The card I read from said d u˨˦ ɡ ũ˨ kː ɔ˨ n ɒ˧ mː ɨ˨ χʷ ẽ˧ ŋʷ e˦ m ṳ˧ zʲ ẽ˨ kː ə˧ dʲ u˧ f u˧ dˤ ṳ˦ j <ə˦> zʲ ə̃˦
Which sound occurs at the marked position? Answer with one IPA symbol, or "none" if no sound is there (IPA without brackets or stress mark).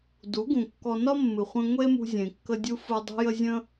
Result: ə˦